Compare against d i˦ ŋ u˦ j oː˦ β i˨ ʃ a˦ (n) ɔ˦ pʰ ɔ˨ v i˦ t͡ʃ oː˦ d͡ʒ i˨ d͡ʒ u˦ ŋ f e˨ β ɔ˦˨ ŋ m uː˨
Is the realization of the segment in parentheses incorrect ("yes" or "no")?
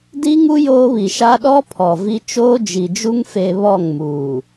yes